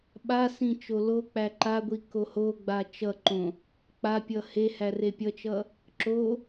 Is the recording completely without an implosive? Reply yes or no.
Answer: no